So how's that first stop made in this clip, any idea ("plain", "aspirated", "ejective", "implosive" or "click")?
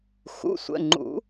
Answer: click